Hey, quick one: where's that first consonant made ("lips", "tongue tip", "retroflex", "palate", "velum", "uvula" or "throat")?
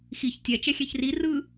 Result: velum